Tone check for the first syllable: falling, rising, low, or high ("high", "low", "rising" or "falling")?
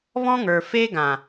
high